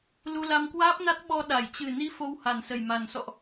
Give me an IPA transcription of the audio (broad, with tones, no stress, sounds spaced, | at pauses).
l u˧ l a˧ m k w aː˦˥ p̚ n a˦˥ t̚ ɓ ɔ˧ ɗ a˧˩ j t͡ɕ ɨ˨˩ n i˨˦ f o˧ w h a˨˩ n s ə˨˩ j m a˨˩ n s ɔ̰˧˨ ʔ